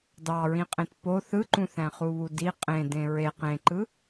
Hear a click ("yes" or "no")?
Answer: yes